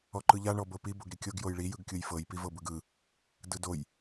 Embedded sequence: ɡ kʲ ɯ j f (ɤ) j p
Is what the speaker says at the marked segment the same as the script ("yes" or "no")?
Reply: yes